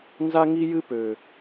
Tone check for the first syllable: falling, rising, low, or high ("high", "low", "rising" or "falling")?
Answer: high